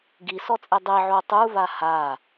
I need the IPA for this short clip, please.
ɡisɔt͡sʼe dˤiʕo tˤuva ha

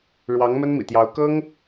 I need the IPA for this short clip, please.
ɻwɑ˧˥ŋmə˥nmḭ˨˩t̪jɑ˧˥ʊ̯ kɤ˥ŋ

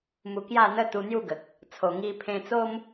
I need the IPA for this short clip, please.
mu˧kja˥˧n̪ə˦ t̪u˧n̪ju˥˧ɡə˨k̚ | t͡sʰo˨˩ŋi˧ pʰẽ˧t͡so˦m

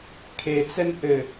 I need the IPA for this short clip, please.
kʰet͡sɛn ʔɘ

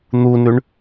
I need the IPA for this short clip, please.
n̪unʉɳ

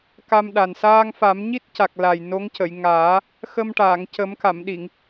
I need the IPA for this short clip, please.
ka˧mɗa˨˩n saː˧ŋfa˨˩˦m ɲi˦˥t̚ca˨˩k̚ la˨˩jno˧˥ŋ cə˨˩˨j ŋaː˨˩˦ | xə˧mʈaː˨˩˨ŋcə˨˩˦m ka˨˩˨mɗi˨˩˨ŋ

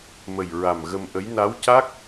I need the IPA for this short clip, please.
mə˨˩jɹa˨˩m ɣə˧mʔə˧˥j na˧˥wca˦˥k̚

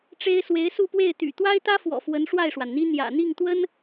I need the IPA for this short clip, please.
ʈ͡ʂe˥ɪ̯ swe˧˥ɪ̯su˥˧pwe˥˩ɪ̯ t̪y̰˨˩t̪wa˥ɪ̯t̪ä˥fwɔ̰˨˩ fwə˧˥nʂwa˥˩ɪ̯ʂwa˩nn̪i˥ n̪jä̰˨˩ n̪i˥˩ŋt̪wə˥n

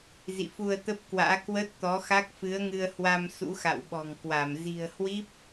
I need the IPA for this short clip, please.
zḭ˧˨fu˧ə̯t̪ə˦˥p̚kwa̰ː˧˥ kwə˦˥t̚ t̪ɔ˨˦xa˦˥k̚fɨ˨˦ə̯ŋɨ˧ə̯ hwa˧m sṵ˧˥xa̰˧˨wɓɔ̤˨˩ŋkwa˧˩m zi̤˨˩ə̯hwi˦˥p̚

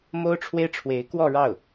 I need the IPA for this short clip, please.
mo˥ʊ̯ʈ͡ʂʰwe˥ɪ̯ʈ͡ʂʰwe˧˥ɪ̯ kwɔ˥˧ɻɑ˥˩ʊ̯

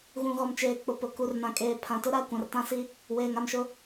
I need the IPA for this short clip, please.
ɣũ˨ɣɔ˨mt͡ʃeː˨k͡pʊ˨ pʊ˨ ku˨rnã˨kʼeː˨ pʰã˨tʊ˦ɾa˦˨ kʷã˨rtã˦si˦ | weː˨ŋa˨mʃʊ˦

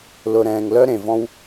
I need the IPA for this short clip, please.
lʊ˨ɾɛ̃ː˨ŋ lœ˥ɾẽ˩vɔ̃˦w

